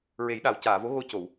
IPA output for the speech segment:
ɹ e˨˩˦ j ɗ a˨˩ w c aː˨˩˨ v o˧˥ ɣ o˧ c o˨˩˨ w

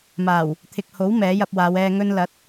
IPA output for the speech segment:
m aː˨˩ w | t̪ʰ ɪ˨ k̚ h o˨˥ w m ɛː˨˥ j ɐ˧ p̚ w aː˨˧ w ɛː˧ ŋ ɵ˧ n l ɐ˨˥ t̚

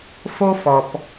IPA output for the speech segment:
f o˦ f ɔ˩ p

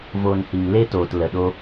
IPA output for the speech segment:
v oː˧ n h i˨ ŋ l e˦ t oː˨ t l ə˨ ɗ o˦

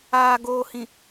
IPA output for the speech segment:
aː˨ ɡ oː˨ h ĩ˨

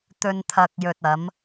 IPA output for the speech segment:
t̪ ɵ˨ n t̪ʰ ɐ˨ k̚ j ɵ˨ t̚ ɐ˨˧ m

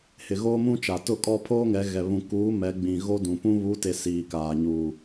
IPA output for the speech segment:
h ɪ˨ ɣ oː˦ m ũ˦ t͡ʃ a˨ t ʊ˦˨ kʼ ɔ˦ pʰ oː˦ ŋ ɛ˨˦ ɣ ɛ˨ β ũ˨ k uː˨˦ m ɛ˨˦ ɡ͡b ĩ˨ ɣ o˦ d ũ˨ p ũ˦ β u˨˦ t e˨ s iː˨ k aː˨ ɲ uː˨

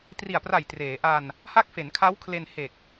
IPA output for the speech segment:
t r i˨˩ a̯ p r a˨˩ j t r eː˩˦ ʔ a˧ n | h a˦˥ k̚ f e˩˦ n kʰ a˦˥ w kʰ l e˧ n h e˨˩ k̚

